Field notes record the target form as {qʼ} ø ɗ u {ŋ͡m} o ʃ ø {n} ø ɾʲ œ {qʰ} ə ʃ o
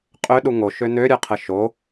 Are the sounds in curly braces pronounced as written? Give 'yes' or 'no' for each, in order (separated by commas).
yes, no, yes, yes